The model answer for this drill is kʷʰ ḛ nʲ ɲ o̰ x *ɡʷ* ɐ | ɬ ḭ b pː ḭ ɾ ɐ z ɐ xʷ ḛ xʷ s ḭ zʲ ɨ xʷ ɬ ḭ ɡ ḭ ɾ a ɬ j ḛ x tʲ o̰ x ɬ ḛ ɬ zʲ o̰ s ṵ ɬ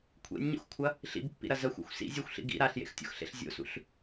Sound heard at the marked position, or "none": kʷʰ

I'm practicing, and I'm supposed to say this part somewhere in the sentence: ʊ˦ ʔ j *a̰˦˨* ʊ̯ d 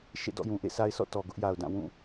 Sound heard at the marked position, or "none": a˨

